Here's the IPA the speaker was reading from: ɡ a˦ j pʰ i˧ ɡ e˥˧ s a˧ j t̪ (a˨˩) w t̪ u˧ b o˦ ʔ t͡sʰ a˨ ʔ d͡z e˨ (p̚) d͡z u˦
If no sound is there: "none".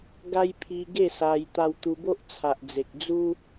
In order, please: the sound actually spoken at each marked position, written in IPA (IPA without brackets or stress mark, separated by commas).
a˧, k̚